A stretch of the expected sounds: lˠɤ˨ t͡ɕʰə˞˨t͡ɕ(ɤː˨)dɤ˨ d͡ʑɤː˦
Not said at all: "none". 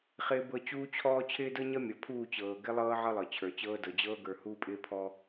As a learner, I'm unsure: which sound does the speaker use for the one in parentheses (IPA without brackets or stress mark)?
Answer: ɤː˦